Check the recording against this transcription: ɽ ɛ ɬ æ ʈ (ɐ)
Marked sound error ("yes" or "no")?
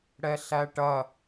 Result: no